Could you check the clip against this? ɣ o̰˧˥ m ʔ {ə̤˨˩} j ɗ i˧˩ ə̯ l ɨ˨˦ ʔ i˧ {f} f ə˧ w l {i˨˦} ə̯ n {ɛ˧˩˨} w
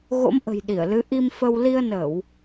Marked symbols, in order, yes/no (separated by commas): yes, no, no, no